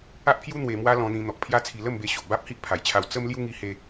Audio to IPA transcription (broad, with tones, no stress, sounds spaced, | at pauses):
a˦ ʔ pʰ j u˦ n̪ w e˧ m w a˦ l ɔ̃˧ n̪ ĩ˧ n̪ ɔ˨ k̚ pʰ j a˦ t͡sʰ i˧ l ə˥˧ m b e˧ ɕ o˨ ʔ b a˦ p̚ h i˦ ʔ pʰ a˨˩ j t͡ɕʰ a˧ w t͡s ə˦ m l j u˦ ŋ i˧ h e˧